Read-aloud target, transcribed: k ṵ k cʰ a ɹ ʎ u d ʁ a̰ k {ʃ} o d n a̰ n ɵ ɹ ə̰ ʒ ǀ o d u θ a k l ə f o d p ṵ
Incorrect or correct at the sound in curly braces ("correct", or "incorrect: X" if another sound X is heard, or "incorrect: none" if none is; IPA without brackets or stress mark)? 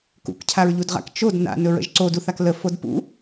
incorrect: t͡ʃ